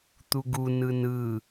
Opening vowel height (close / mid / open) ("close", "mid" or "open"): close